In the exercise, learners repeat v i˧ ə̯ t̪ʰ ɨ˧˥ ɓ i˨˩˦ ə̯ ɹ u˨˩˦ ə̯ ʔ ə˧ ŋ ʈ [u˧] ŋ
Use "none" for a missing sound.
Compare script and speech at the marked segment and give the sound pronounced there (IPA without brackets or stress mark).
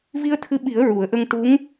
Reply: u˧˥